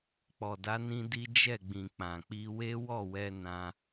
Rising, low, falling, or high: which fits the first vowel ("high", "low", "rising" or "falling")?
low